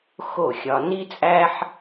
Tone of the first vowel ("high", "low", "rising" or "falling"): falling